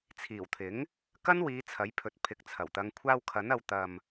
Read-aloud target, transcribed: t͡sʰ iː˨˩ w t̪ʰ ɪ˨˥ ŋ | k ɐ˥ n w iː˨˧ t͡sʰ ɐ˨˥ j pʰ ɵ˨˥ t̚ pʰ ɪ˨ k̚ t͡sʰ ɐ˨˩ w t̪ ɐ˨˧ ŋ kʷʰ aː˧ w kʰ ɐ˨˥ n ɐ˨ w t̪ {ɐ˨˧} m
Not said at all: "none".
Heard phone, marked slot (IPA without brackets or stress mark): ɐ˨